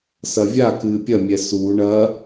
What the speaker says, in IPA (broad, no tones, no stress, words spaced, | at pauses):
sɐvʲa kɨːpʲɐmʲɛ su ɳɐ